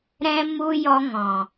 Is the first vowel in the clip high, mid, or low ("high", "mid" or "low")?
mid